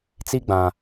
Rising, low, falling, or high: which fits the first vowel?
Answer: high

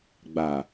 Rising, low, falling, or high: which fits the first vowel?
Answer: low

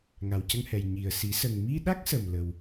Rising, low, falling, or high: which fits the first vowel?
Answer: low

